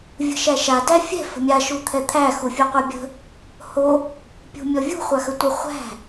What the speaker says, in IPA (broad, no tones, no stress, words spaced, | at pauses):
vʲə̤ʃæʃa dæfʲɛ̤ fə̤mʲa ʃut̪ʰɛt̪ʰæ xufʲuqʷəbʲə̤ | ho | pʲṳmʲɔvʲṳ χʷaxətʷə χʷæ̤